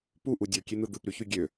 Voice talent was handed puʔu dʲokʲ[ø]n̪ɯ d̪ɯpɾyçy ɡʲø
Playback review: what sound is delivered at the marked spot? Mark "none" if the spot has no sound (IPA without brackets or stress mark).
e